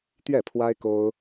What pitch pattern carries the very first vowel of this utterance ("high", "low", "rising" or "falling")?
falling